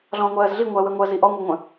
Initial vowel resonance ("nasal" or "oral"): nasal